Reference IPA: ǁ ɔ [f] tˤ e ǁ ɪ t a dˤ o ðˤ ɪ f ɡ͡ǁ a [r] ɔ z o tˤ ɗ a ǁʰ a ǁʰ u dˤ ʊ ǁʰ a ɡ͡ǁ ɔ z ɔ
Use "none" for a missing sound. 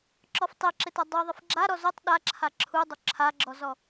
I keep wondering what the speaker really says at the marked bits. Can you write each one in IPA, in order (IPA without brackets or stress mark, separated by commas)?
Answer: f, ɾ